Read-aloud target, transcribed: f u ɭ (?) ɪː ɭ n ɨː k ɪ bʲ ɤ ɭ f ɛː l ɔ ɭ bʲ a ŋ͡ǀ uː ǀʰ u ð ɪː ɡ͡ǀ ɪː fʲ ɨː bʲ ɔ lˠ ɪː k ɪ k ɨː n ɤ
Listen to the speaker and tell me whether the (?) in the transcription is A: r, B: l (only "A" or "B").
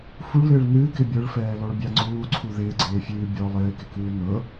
B